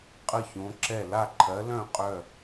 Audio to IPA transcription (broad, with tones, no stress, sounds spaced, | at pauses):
qʼ ə˥˨ ç õ˨˥ ǁ ɛ˥˨ l a˥˨ ǃʰ ɜ˨˥ l œ̃˥˨ qʼ œ˥˨